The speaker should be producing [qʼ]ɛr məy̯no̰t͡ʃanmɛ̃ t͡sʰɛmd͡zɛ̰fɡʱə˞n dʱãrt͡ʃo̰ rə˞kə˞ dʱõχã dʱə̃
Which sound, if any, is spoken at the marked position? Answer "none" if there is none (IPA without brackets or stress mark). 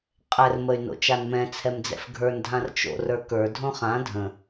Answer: qʼ